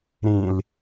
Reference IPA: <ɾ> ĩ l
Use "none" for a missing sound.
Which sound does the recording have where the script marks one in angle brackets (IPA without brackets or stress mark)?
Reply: ɾ